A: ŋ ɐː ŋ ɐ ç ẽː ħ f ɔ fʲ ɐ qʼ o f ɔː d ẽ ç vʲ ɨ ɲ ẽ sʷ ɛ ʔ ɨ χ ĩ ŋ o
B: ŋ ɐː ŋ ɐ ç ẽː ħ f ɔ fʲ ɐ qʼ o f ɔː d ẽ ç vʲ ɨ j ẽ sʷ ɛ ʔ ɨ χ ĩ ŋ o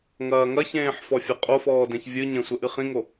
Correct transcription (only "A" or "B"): A